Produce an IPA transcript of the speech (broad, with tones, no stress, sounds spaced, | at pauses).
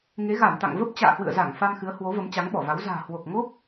ŋ e˨˦ ɣ a˧˩ m t̪ a̰˧˨ ŋ v ə˦˥ p̚ t͡ɕ a̰ː˧˨ h w ɨ̰˧˨ ə̯ z a˧˩ ŋ f a˧ m x ɨ˨˦ ə̯ h w o˨˦ v ə˨˦ m t͡ɕ a˨˦ ŋ ɓ ɔ˧˩ v a˨˦ w z a̤ː˨˩ h w o˨˩ k̚ ŋ o˦˥ k̚